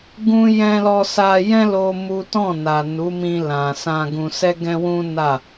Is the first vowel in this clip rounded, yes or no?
yes